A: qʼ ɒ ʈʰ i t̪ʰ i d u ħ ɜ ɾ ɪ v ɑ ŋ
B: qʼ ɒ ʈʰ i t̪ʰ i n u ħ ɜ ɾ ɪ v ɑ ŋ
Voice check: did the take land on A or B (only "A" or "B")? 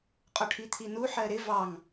B